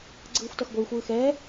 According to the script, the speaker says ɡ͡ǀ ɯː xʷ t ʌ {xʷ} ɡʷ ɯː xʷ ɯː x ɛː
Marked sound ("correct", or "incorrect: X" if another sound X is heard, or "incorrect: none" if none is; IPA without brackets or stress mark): incorrect: x